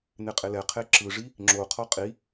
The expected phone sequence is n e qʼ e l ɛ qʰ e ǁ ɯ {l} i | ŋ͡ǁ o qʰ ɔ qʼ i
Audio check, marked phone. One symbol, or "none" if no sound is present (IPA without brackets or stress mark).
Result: ʐ